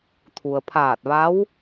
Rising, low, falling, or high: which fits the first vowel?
low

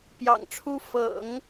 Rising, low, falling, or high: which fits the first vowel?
low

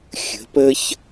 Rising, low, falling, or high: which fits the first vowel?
rising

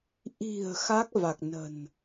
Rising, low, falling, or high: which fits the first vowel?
low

